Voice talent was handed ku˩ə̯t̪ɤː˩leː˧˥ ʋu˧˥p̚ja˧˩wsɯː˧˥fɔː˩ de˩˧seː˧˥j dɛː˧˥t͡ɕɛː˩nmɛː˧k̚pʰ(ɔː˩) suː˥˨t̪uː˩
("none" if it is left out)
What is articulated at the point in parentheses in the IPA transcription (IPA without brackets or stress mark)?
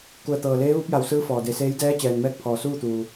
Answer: ɔː˩